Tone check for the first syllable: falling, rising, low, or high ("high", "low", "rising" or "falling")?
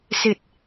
low